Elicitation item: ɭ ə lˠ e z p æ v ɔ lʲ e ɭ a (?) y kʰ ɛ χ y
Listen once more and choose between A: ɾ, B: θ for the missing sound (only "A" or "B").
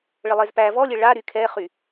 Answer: A